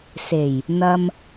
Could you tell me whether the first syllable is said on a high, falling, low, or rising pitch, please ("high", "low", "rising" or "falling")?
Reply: low